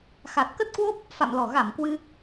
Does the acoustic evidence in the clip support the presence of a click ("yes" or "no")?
no